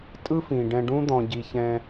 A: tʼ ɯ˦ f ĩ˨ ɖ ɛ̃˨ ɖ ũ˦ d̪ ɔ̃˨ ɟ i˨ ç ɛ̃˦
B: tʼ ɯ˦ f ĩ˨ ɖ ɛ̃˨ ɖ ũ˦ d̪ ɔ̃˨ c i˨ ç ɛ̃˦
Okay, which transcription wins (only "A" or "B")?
A